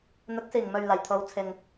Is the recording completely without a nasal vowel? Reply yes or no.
yes